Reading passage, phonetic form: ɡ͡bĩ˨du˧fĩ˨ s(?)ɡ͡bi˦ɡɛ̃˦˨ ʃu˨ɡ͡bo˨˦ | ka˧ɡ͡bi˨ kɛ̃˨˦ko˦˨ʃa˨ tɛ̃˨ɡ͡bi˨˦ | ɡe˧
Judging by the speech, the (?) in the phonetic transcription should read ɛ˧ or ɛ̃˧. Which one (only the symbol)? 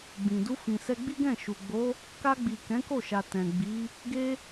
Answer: ɛ˧